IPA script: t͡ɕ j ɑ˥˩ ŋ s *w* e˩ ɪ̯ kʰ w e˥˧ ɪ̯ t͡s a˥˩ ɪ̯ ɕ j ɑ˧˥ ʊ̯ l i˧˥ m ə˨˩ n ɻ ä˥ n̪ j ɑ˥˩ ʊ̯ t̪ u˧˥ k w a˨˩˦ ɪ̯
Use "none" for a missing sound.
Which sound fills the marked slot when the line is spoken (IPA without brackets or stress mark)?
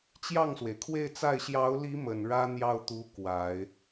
w